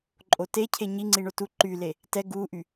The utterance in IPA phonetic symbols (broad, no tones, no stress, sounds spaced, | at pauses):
ǃʼ o t e cʰ e ɲ i ŋ͡ǀ i ɳ o t u ǃ y l e | t ɛ ɡ u ʔ y